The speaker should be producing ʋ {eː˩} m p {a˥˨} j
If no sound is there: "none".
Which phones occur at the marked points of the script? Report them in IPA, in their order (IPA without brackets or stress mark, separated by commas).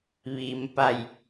iː˩, a˧˩